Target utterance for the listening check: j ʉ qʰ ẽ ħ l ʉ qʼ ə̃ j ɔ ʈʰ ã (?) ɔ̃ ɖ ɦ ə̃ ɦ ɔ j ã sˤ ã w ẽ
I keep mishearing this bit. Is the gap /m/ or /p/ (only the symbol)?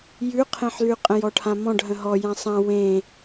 m